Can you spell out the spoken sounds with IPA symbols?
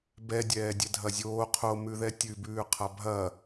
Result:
bɛ dʲɛːdʲɛdʱɐzʲoː qʰo mʉðɛtʲʉ bʉːqʰabʱɐ

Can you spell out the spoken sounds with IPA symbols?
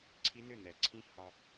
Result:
ǀʰi˦˥nʏ˥˨nɛ˩ ǀʰĩ˦˥hɒ˧

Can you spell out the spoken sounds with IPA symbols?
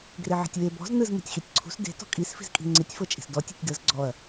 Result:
ɡreʕe̤tʲwe bɔ̤z nɯz me̤tʲxitʲǀʰṳs de̤ tɔ̤kʼisfi̤zkʼi̤ ŋ͡ǀitʲfɤt͡ʃʼi̤s dɔ tʲe̤tʲdɤz ɡ͡ǀɔɐ̯

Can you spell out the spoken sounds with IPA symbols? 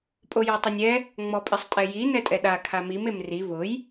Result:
pʼojɔtˤɪnʲɛ | ŋ͡mɔpʼɪsˤtʼɛji nɛtʼɛɗa kʰamim emri vʊj

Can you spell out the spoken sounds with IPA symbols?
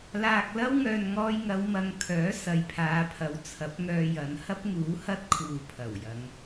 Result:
laː˧k̚lɐ˥w ŋœː˨nŋɔː˧jŋɐ˨˧w mɐ˧ŋkʰœː˨˥ sɐ˨jpʰaː˨˧pʰɐ˨˥w t͡sʰɐ˨˥p̚ŋœː˧jɐ˨˧n hɐ˥p̚ŋuː˨˥hɐ˥t̚ kʰuː˨pʰɐ˨˩wjɐ˨˧ŋ

